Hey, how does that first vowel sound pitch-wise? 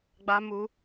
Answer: high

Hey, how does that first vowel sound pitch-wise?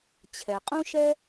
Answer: low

